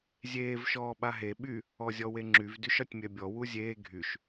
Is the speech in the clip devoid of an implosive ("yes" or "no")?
no